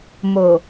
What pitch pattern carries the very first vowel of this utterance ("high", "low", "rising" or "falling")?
low